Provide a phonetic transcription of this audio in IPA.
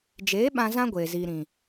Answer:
d͡ʒeː˨˦ɓã˧ zã˦ɡʷeː˨ziː˨ ɾĩ˨

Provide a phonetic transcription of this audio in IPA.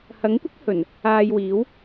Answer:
hɐ˨˥ŋkʷɪ˥k̚ hɵ˨˩n | aː˧jwiː˨˥w

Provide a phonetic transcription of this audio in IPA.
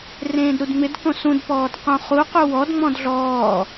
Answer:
rẽːdɾudŋ͡mɪdkõ sũdpɔːd qũχuqu wɔdŋ͡mɔ̃d ɮɔː

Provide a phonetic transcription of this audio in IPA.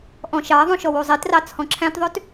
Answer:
ʔɔ̃ʃɑɐ̯ðˤũ ʃɔwuzˤitrɑ t͡sʰɔ̃ǁʰæ̃tðˤøt

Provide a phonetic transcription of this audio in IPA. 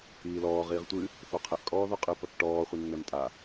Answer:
iːlɔː ʁiːʁtʷɨ | θoqʰɘʔ kʼɔːðɔqʼɨ pɐkʈɔː χʷɨnːɛmtʼa

